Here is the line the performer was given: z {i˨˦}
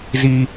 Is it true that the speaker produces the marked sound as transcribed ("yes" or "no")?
no